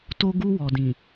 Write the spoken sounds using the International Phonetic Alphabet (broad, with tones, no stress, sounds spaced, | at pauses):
t o˧ ɡ u˧ w ɔ˨ d ĩ˨